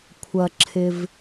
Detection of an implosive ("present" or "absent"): absent